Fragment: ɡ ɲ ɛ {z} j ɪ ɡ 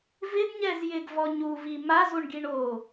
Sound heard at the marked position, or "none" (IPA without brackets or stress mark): z